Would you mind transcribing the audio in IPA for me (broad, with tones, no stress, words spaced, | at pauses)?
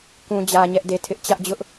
kũ˦d͡ʑä˦ɲɛ˦ʔde˦˨ tʰɪ˦ʔ t͡ɕä˦ʔd͡ʑʊ˦ʔ